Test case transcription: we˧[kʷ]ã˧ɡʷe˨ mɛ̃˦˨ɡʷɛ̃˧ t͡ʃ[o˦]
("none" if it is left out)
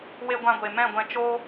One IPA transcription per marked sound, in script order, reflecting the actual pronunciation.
ɡʷ, o˦

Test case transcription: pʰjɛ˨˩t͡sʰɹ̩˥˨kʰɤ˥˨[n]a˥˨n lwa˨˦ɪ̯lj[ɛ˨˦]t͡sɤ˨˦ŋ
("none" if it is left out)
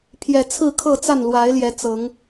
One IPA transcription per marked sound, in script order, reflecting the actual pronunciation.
t͡s, ɛ˨˦

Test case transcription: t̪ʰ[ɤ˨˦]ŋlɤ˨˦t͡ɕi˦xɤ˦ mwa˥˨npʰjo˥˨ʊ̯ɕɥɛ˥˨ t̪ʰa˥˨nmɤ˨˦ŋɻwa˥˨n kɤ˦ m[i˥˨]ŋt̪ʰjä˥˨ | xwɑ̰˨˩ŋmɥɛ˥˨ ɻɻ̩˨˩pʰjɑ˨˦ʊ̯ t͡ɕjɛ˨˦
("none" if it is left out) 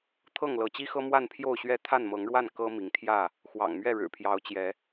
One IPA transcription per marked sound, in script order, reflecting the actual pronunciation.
ɤ˥˨, i˨˦

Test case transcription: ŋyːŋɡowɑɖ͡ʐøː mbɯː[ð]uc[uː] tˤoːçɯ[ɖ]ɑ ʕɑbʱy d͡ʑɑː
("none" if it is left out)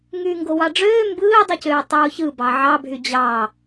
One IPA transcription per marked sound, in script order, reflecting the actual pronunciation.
dˤ, øː, b

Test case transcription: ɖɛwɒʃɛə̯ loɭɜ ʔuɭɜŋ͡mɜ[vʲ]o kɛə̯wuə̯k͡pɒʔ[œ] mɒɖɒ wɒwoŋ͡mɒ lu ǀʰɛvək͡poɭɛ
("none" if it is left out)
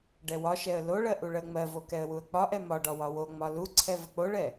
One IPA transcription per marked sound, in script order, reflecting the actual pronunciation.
v, ɛ

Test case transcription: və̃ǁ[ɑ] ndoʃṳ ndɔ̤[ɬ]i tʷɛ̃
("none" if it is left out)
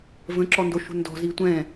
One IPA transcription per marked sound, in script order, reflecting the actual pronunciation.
ɔ, z

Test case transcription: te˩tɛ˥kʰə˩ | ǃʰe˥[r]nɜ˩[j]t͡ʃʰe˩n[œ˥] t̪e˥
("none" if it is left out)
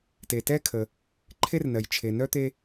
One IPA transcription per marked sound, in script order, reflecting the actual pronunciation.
r, j, œ˥

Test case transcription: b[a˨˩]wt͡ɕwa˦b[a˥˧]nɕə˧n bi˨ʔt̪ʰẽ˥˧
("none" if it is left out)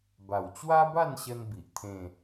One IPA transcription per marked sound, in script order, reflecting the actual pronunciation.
a˨˩, a˥˧

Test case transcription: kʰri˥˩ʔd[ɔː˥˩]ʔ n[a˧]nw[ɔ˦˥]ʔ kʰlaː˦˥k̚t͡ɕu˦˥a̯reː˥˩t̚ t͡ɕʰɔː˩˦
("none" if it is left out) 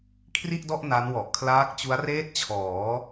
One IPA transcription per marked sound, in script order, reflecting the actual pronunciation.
ɔ˥˩, a˦˥, ɔ˨˩

